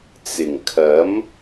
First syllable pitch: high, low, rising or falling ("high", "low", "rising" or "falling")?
low